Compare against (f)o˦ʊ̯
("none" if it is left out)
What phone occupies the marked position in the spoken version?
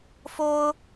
f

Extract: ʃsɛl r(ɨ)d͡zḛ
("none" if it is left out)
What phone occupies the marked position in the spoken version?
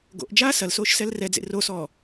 ɛ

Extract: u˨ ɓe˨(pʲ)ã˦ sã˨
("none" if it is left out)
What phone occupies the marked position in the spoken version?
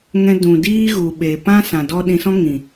p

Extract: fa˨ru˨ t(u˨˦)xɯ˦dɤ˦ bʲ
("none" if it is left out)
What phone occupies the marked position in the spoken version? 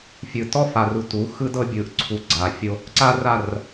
u˨˦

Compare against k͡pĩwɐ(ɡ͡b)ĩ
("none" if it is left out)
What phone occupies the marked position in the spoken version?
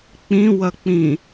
k͡p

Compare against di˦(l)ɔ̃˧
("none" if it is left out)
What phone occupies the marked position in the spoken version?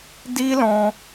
l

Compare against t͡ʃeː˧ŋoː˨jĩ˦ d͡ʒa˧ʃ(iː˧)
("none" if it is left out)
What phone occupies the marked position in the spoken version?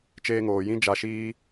iː˦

